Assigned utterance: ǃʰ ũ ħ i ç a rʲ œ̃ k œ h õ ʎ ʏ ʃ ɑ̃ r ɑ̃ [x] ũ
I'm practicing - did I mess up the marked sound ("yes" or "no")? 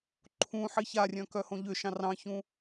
yes